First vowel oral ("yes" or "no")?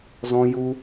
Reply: no